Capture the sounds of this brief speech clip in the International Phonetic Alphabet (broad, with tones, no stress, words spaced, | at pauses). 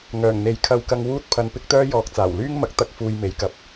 ŋœː˨˩ŋn̪e˨j kʰɐ˧wkɐ˧ŋ wuː˥t̚pʰɐ˧npɪ˥k̚t̪œː˥ jɔː˨k̚t͡saː˨˩wlyː˥ŋmɐ˨˥k̚ t̪ɐ˥k̚fuː˧jme˨˥j kɐ˨p̚